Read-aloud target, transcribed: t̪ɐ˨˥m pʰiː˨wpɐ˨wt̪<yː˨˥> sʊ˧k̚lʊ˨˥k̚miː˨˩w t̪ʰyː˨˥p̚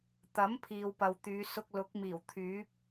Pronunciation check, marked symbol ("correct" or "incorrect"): incorrect